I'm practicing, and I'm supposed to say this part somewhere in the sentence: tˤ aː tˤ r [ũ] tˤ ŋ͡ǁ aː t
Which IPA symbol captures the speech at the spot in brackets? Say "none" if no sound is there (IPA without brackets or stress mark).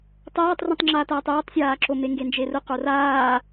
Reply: ũ